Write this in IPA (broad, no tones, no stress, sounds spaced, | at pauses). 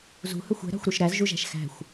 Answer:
z ṳ h ɵ xʷ ɛ̤ ɾ ɑ̤ xʷ ɾ ʉ ʃ ɾ æ z ʒ u ʒ æ̤ ʃ x æ̤ xʷ